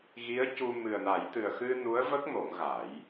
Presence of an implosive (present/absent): absent